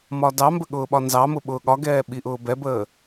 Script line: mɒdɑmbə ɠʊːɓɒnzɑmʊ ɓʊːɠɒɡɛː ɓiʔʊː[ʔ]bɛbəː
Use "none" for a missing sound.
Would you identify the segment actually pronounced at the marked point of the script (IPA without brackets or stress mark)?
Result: none